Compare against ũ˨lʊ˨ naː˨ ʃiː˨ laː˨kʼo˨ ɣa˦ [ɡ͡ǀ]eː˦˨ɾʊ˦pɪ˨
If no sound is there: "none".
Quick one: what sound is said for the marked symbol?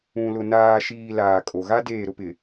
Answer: d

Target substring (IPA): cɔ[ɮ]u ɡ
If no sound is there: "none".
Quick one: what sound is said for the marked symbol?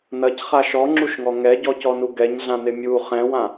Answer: n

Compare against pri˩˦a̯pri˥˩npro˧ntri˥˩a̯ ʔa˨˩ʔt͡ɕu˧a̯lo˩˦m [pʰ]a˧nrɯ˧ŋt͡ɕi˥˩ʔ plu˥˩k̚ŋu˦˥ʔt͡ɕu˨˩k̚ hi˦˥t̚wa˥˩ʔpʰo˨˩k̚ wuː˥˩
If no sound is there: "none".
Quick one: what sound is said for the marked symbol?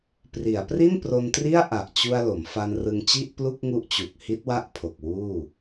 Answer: f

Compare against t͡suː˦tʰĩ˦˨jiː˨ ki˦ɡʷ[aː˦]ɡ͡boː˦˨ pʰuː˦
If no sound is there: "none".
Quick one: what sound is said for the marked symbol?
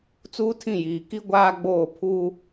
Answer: aː˦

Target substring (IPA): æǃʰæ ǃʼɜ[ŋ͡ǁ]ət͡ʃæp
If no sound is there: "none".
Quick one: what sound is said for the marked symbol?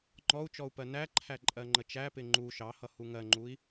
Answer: ŋ͡ǃ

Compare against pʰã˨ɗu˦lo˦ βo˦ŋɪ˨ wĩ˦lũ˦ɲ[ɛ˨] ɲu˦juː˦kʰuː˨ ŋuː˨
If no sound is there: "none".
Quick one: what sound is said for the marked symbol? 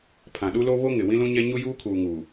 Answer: ɛ˦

